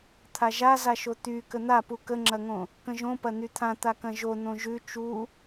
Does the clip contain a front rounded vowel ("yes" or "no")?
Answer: yes